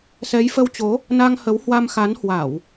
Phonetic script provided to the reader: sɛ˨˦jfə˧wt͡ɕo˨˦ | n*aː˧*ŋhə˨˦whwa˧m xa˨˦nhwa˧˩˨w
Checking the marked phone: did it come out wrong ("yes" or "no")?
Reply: yes